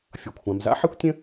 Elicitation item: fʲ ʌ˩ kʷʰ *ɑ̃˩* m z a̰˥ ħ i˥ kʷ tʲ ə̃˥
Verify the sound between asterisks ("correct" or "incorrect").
incorrect